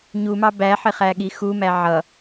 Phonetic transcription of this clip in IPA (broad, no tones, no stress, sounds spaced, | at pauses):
ɲ u m ɑ b æ ħ ɪ χ æ ɠ i x u m æ ʕ ʌ